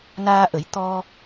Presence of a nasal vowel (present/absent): absent